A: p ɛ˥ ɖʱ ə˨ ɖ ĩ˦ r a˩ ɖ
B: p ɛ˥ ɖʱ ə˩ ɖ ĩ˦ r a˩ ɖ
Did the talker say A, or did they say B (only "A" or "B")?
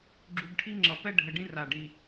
B